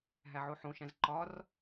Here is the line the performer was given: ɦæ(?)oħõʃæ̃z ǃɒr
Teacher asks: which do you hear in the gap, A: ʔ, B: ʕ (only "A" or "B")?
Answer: B